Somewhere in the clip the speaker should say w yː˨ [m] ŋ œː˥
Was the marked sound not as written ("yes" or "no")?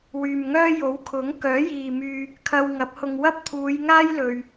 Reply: no